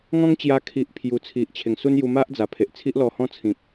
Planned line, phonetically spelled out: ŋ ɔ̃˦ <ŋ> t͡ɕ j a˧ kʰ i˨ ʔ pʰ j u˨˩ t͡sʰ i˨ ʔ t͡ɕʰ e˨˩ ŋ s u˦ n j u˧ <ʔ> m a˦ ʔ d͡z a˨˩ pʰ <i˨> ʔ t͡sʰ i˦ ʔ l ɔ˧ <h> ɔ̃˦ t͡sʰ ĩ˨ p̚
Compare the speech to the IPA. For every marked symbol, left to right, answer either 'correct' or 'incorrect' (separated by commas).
correct, incorrect, incorrect, correct